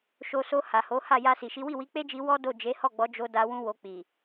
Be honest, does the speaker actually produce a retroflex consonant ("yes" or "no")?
no